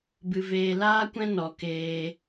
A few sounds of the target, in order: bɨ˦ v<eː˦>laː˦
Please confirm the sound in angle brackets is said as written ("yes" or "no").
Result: no